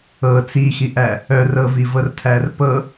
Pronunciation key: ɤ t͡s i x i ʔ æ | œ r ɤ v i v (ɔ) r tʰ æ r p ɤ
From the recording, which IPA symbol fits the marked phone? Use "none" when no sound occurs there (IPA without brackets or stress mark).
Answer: ɤ